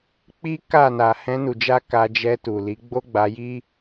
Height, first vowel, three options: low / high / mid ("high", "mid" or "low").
high